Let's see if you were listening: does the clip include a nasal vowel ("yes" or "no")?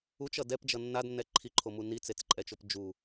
no